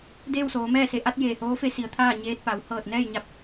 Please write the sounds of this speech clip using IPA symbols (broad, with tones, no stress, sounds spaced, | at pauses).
d eː˥˨ w s oː˩˧ m ɛː˥˨ s e˩˧ ʔ a˧˥ t̚ j eː˧˩ h oː˧˥ f e˧˥ s i˩˧ ə̯ t̪ʰ aː˥˨ ɲ eː˧ t̚ p a˩˧ w h ɤː˧˩ t̚ n ɛː˥˨ j ɲ a˧˥ p̚